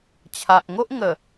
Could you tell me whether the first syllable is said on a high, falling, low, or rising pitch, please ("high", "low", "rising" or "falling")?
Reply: low